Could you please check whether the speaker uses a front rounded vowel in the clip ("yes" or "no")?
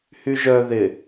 yes